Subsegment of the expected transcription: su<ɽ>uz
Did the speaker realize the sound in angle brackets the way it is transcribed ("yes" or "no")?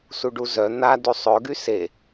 no